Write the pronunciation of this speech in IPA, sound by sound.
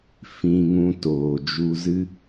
f ĩ˧ ŋ ũ˧ t oː˨ d͡ʒ u˧ z ɨ˦

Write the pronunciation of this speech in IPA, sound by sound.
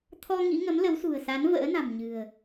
t̪ʰ ɔ˧ ŋ ḭ˧˥ ŋ ə˨˦ m l ə˨˦ w s ṳ˨˩ ə̯ s a˨˦ n v ə̰ː˧˥ n a̤˨˩ m ɲ ɨ̤˨˩ ə̯

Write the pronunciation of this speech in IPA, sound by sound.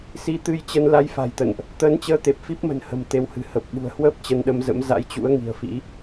s i˨˦ t̪ ɨ˧ j t͡ɕ ə˧ n l a˧ j f a̤˨˩ j t̪ ə̰˧˨ n ʔ | t̪ əː˨˦ n t͡ɕ əː˧ t̪ e˨˩ p̚ f i˦˥ p̚ m ə̤˨˩ n h ə̤˨˩ m t̪ e˨˦ w h ɨ̤˨˩ h ə˨˩ p̚ ɓ ṳ˨˩ ə̯ h w əː˦˥ p̚ t͡ɕ ə˧ n ɗ ə˧ m z ə̰˧˥ m z a̰˧˥ j t͡ɕ ṵ˧˥ ə̯ ŋ i̤˨˩ ə̯ f ḭ˧˥

